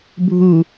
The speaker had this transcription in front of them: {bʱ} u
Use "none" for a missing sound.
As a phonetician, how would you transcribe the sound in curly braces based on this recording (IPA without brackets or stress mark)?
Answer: bʱ